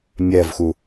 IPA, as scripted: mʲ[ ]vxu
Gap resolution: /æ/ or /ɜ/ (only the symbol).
ɜ